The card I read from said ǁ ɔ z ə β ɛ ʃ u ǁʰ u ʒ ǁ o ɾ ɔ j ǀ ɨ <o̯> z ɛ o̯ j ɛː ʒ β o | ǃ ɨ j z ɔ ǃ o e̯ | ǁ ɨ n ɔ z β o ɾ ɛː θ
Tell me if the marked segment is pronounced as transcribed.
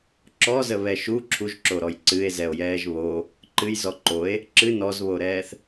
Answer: no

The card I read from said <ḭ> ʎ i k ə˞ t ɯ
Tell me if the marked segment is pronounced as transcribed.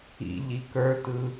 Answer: yes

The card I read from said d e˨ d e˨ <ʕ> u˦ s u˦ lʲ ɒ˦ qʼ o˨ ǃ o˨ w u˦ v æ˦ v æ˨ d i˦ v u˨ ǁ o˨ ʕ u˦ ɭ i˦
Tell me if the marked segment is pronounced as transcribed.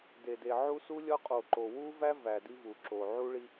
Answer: yes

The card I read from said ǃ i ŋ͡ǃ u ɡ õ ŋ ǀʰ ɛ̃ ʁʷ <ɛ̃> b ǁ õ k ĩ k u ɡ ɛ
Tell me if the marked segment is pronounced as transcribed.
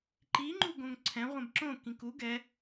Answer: yes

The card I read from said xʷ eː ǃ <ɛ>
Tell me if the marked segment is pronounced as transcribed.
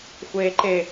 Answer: no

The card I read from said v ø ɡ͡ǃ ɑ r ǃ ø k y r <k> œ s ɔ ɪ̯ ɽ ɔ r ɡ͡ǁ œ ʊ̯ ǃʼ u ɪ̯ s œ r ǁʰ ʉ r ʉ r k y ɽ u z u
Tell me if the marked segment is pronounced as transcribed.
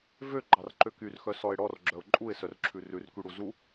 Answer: no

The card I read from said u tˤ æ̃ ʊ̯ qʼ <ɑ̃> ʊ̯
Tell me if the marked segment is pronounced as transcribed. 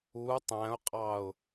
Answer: no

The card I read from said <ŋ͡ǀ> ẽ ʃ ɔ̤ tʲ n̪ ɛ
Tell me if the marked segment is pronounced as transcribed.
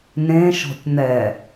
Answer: no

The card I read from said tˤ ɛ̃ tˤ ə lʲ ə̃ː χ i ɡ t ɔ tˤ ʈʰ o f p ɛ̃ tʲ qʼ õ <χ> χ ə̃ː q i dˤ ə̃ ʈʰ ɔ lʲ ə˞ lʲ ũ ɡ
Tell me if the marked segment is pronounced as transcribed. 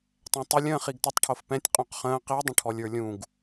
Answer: no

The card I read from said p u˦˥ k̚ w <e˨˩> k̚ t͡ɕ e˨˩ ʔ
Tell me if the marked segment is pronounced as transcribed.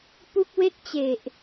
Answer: no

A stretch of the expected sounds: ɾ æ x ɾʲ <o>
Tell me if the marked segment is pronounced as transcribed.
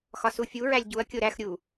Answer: no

